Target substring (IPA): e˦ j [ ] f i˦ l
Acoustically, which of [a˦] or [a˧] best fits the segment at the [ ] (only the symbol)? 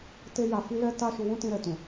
a˧